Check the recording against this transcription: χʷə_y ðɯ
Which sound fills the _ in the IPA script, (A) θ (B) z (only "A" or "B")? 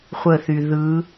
A